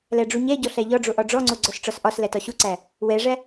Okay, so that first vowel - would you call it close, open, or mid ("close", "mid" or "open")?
open